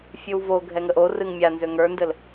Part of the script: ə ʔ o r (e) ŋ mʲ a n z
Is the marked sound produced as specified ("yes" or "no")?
no